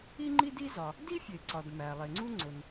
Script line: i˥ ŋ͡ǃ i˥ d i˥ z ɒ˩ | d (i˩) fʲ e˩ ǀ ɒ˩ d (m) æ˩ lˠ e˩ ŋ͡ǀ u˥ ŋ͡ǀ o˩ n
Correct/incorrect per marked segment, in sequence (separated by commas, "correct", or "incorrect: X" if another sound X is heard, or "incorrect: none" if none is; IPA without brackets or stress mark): incorrect: i˥, correct